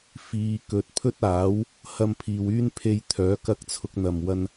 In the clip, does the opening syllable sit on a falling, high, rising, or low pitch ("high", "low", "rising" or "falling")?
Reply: low